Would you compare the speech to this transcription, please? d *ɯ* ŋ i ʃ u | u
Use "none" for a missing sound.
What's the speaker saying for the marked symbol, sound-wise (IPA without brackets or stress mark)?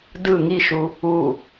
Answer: ɯ